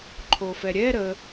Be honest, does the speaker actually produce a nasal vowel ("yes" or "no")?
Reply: no